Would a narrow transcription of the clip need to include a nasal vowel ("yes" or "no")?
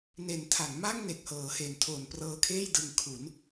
no